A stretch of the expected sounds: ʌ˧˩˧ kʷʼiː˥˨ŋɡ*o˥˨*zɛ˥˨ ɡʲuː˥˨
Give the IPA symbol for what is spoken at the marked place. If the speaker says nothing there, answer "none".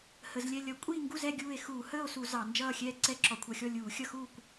u˥˨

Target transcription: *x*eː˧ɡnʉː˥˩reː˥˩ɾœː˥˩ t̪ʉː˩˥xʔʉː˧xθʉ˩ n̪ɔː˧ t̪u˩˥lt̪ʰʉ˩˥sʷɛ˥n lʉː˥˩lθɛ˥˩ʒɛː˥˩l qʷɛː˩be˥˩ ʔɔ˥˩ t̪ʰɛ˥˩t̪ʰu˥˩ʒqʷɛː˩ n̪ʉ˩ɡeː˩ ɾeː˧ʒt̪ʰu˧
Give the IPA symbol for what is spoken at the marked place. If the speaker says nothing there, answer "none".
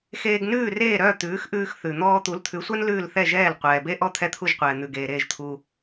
x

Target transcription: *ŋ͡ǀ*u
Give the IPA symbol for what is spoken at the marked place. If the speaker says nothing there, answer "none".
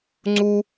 ŋ͡ǀ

